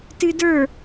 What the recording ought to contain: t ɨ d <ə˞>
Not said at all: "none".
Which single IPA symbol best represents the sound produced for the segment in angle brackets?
ə˞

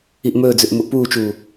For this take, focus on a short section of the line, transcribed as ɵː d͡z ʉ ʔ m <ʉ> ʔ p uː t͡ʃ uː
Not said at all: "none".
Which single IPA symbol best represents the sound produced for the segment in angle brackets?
u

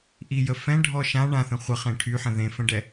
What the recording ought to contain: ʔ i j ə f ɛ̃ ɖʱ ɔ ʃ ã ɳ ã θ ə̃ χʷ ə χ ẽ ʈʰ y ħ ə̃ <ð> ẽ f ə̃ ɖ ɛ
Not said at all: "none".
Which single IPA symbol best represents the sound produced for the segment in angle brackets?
ð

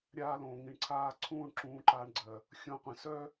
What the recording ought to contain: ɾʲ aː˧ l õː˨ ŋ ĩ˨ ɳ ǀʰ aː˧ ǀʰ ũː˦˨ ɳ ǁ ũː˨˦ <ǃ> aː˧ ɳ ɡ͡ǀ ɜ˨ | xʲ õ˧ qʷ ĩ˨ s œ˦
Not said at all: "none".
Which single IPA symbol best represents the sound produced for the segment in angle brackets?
ǃ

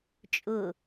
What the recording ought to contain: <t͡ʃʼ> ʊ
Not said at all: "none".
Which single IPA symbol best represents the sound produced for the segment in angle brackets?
t͡ʃʼ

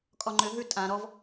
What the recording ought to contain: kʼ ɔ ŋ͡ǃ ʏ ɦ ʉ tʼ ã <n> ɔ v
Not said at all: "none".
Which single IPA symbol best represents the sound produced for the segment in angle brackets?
ɾ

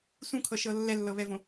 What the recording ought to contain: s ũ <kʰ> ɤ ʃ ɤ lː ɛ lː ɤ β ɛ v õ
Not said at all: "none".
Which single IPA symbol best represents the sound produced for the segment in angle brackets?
kʰ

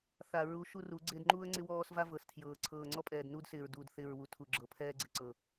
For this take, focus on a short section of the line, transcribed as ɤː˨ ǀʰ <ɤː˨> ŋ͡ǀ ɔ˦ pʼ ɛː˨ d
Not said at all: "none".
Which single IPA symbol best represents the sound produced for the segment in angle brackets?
ɤː˨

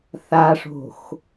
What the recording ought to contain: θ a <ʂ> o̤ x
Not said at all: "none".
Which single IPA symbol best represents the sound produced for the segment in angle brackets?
ʂ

